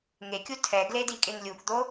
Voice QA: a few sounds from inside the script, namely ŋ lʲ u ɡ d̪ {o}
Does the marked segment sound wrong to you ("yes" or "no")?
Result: no